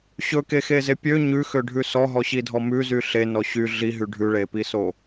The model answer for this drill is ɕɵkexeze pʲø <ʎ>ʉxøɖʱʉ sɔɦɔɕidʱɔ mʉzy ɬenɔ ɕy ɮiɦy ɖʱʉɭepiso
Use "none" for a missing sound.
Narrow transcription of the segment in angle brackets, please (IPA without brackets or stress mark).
ɲ